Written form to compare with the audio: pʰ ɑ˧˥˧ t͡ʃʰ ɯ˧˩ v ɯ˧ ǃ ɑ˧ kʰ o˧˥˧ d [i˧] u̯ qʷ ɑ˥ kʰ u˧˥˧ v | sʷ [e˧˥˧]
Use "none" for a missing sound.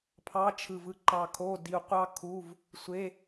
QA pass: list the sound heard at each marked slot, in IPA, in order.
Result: i˧, e˧˥˧

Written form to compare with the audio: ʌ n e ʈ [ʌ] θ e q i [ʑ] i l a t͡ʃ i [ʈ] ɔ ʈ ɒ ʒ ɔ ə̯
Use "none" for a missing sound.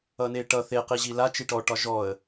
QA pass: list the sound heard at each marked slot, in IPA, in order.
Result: ʌ, ʑ, ʈ

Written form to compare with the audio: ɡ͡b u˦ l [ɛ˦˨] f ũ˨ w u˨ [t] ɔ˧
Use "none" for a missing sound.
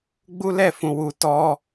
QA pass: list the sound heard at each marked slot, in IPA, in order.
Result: ɛ˦˨, t

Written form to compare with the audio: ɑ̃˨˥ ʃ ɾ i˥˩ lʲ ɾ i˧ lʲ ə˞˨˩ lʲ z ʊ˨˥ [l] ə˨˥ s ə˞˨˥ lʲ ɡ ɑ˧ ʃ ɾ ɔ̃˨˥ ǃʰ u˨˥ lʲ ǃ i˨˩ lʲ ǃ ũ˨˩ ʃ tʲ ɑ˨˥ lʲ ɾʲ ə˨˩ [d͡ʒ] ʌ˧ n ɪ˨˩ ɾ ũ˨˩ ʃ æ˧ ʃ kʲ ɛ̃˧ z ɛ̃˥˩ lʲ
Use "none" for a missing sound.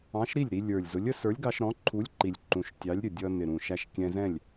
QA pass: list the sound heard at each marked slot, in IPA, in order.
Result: lʲ, dʲ

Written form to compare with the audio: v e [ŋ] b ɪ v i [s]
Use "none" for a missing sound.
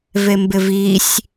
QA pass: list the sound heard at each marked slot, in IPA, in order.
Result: m, sʲ

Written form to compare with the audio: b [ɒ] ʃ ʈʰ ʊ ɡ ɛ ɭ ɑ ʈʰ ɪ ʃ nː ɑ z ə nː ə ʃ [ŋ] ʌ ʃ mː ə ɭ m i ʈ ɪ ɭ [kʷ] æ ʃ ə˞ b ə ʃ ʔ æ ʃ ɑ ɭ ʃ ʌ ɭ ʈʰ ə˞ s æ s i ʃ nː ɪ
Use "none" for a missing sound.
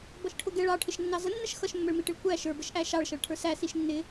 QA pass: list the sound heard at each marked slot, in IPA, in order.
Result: ʌ, x, kʷ

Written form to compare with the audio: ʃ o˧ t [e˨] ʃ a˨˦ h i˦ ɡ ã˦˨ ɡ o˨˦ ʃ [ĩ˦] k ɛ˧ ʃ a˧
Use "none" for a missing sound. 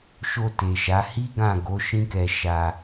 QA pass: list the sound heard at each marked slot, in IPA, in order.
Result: e˨, ĩ˦

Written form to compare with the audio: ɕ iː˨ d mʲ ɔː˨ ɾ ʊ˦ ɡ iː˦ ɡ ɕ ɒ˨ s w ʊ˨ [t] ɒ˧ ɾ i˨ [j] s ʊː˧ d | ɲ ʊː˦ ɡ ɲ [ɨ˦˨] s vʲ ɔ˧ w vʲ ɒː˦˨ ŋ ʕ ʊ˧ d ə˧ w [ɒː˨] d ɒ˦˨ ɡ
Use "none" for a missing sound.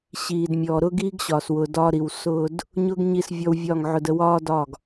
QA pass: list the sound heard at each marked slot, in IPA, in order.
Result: d, w, i˦˨, ɒː˦

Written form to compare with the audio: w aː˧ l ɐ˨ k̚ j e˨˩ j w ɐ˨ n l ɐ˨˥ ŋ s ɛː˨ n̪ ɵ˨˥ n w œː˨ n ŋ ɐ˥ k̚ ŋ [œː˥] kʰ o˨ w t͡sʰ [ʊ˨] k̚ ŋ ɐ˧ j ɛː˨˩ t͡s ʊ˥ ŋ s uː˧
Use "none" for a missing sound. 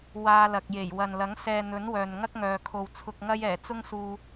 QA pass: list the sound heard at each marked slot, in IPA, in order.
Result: œː˨, ʊ˨

